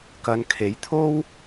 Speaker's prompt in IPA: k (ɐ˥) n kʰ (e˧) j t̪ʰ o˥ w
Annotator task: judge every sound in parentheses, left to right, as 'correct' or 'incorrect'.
incorrect: ɐ˨˧, incorrect: e˨˥

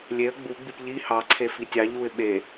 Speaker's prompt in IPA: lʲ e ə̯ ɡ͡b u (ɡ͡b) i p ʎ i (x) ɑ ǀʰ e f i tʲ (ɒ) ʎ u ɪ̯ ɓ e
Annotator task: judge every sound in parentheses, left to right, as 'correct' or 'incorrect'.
correct, incorrect: h, incorrect: ɑ

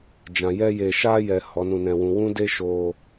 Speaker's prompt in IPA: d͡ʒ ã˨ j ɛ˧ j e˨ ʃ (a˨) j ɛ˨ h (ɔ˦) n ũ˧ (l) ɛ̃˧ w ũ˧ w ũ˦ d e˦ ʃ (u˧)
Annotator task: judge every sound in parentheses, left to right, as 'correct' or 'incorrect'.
incorrect: a˧, incorrect: ɔ˨˦, incorrect: n, incorrect: o˧

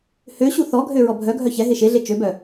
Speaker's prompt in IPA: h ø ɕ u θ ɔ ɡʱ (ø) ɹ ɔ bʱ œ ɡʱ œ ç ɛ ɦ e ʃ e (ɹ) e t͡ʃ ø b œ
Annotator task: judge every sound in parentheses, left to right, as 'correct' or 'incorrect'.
correct, incorrect: ɮ

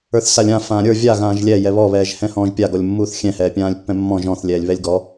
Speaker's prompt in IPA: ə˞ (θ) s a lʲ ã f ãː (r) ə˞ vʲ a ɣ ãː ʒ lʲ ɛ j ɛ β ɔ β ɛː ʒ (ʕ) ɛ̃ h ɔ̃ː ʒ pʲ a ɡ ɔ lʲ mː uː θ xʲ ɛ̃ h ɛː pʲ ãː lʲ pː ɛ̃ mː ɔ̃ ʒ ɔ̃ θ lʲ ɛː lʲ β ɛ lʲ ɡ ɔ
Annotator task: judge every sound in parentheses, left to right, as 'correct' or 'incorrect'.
correct, incorrect: ɾʲ, incorrect: h

